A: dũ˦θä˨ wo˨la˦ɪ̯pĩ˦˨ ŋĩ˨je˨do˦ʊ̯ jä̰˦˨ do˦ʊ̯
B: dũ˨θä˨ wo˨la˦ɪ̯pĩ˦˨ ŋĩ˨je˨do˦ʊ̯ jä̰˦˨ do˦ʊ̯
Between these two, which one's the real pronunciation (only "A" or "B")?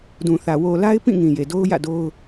B